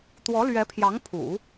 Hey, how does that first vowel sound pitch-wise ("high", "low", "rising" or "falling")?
rising